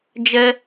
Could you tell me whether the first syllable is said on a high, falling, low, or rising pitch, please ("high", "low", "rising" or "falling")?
high